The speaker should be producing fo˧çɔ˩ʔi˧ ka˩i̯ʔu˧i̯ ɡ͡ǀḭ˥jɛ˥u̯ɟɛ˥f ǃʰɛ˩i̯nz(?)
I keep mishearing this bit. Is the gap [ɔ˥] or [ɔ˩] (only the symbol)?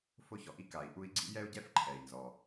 ɔ˩